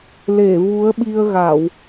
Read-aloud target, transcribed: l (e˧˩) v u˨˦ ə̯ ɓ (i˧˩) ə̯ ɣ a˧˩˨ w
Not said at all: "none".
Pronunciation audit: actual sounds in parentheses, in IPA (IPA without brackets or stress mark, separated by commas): e˧˩, i˧